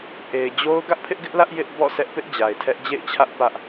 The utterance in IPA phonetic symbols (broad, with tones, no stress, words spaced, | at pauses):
ʔe˨ɪ̯d͡ʑo˦ʊ̯ ɡä˦ʔpʰɪ˦ʔɡɪ˦ʔlä˦ʔ jɪ˦ʔ bɔ̰˦˨sʰɛ˦ʔpɪ˦ʔ d͡ʑa˨ɪ̯tʰɛ˦ʔ d͡ʑḛ˦˨ɪ̯t͡ɕʰä˦ʔ pä˦ʔ